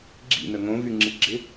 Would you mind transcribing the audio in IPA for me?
ɡ͡ǁ ḭ n ə ŋ õ v y ŋ͡ǁ i ɡ͡ǁ ɪ

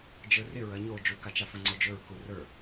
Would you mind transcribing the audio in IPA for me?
d͡ʒ ə˞ r ɪ ɹ ɐ ɲ o d͡ʒ u k a t͡ʃ a f ə̃ ŋ͡ǀ o d͡ʒ ɵ ɹ k u r ə˞

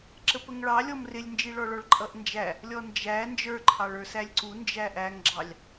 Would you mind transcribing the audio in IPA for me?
ǁ ə p ə ŋ ɭ ɑ lʲ ɔ m r ɪ lʲ n d͡ʒ i ɭ ɔ ɭ ɔ ɭ ǃʼ ʌ ʔ n d͡ʒ æ | lʲ ɔ n d͡ʒ æ n d͡ʒ ə˞ ǃʰ ɑ ɭ ə˞ s æ lʲ ǀ u n d͡ʒ æ ʔ æ ŋ ɡ͡ǁ ɑ lʲ

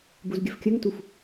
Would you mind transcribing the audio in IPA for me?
b u z ɡʲ ə f kʲ ə ŋ t u f

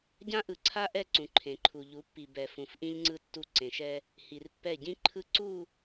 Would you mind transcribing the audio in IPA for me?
ɟ ã˦ ʔ ɯ˨ ǀʰ a˦ ʔ ɛ˦˨ ǀ ũ˨ ǃʰ ẽ˨ ǃʰ u˨ ʎ u˨˦ pː i˨ b ɛ˨ f ũ˨ f ʔ ĩ˦ ʎ ŋ͡ǀ ɯ˦ tː u˦˨ ǀ ẽ˨ ʃ ɛ˦ | h i˨ r pː ɛ˦˨ ɟ ĩ˦ ǃʰ ɯ˦ ǀ u˦˨

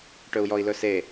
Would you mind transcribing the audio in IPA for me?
ʈ ɵ u̯ j ɔ i̯ l ɵ s e

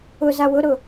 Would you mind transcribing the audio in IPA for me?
ʊ z a w ʊ ɾ ʊ

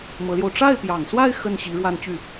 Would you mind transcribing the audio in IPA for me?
m ɤ˧˥ l j o˧ ʊ̯ ʈ͡ʂ a˥˩ ɪ̯ p j ɑ˨˩ ŋ s w a˥˧ ɪ̯ x ə˥˩ n ɕ i˧˥ ɻ w a˥˧ n t͡ɕ y˥˩

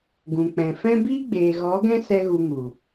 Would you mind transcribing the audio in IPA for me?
ɡ ũ˨ k͡p ɛ̃˨ f ɛ̃˦ b iː˦ ɡ͡b eː˨ ɣ ɔ˨˦ ɡ ɛ̃˦ s ɛ˦ ɣ u˧ ŋ u˨

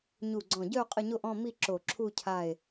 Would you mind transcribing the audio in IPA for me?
ɲ u˧˩ ɡ͡ǀ ɔ̃˧˩ ɟ œ˥˧ o̯ qʼ ə˥˧ ɲ o˥˧ ʔ ɔ̃˥˧ m i˥˧ ǁ o˧˩ ǁʰ u˥˧ cʰ a˥˧ e̯

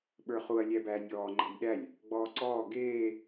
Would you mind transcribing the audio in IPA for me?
ɓ ə˞ χ u ɐ̯ lʲ æ b æː nʲ ɔː ŋ͡ǃ æ̤ nʲ ɗ æ lʲ | ɡ͡b ɔː ǀ ɔː ɡ eː

